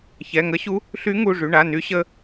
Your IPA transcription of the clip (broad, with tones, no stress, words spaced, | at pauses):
çɛ˩˧˩ŋə˧˥ɕu˧˥ | ɬy˧˥ŋu˩˧˩ʐy˩˧˩ɳa˩˧˩ ny˧˥ɕə˧˥